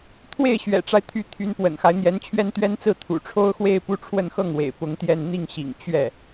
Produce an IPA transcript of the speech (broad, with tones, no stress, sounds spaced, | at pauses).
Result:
t̪ʰ w e˥˩ ɪ̯ ɕ ɥ ɛ̰˨˩ ʈ͡ʂ a˦ ɪ̯ t̪ʰ y˧˥ t̪ʰ y˧˥ n p w ə̰˨˩ n x a˦ ɪ̯ n̪ j ɛ˧˥ n t͡ɕʰ ɥ ɛ˥ n t̪ ɥ ɛ˥ n t͡s ɹ̩˥˩ t̪ʰ ṵ˨˩ ʈ͡ʂʰ o˥ ʊ̯ x w e˥˧ ɪ̯ p u˥˧ ʈ͡ʂʰ w ə˥˧ n x ɤ˥˩ ŋ w ḛ˨˩ ɪ̯ p ʊ˧˥ ŋ t̪ j ɛ˥˧ n n̪ i˥˩ ŋ ɕ ḭ˨˩ ŋ t͡ɕ ɥ ɛ˥˩